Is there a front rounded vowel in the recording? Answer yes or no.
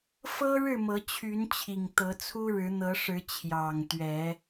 yes